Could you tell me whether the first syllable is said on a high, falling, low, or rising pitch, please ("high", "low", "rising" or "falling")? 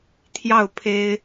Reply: falling